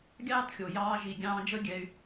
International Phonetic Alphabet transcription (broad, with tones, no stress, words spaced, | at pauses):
ɡʲɑː˦txʲo˨ jɑː˧ʒi˨ ɡʲɑ̃ː˧d͡ʒə˦ɡʲɛ˧y̯